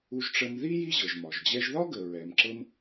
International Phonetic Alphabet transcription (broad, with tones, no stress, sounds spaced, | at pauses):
u˧ ʒ ʈ͡ʂ ə˧ m ð i˥ j i˥ ʑ ɤ˩ ʒ m ɒ˩ ʒ d͡ʑ ɛ˧ ʒ ð ɒ˥ ɡ ə˩ ɹ ɛ˩ m ǁ ɤ˧ m